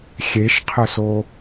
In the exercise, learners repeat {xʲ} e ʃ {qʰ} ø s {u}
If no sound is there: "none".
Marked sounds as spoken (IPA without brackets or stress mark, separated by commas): xʲ, qʰ, o